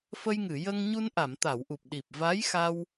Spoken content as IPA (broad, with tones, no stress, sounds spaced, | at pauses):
f ə˧ j ŋ ɨ˨˩˨ j ə˧ ŋ ɲ u˧ n ʔ a˨˩˨ m t̪ a˨˩˨ w ʔ u˨˩ p̚ ɗ i˨˩ p̚ v aː˧˥ j x a˧ w